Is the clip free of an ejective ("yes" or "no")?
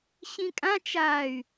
no